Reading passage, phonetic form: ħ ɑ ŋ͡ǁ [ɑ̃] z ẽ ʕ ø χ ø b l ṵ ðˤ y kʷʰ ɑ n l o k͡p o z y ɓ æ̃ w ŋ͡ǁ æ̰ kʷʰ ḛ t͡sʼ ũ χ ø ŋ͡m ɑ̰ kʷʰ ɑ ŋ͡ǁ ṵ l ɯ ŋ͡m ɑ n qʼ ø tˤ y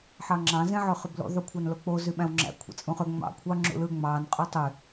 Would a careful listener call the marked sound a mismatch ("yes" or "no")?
no